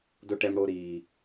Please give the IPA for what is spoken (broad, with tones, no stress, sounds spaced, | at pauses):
d o˦ ʈ ɛ˦ m ɽ o˦ ɾ iː˦